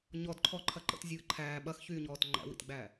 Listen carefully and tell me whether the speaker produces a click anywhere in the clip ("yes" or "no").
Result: yes